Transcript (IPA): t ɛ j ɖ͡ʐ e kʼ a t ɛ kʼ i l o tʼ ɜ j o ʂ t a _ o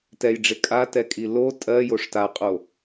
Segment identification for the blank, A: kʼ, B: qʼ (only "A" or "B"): B